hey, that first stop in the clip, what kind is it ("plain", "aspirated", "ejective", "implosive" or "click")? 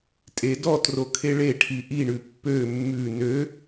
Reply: ejective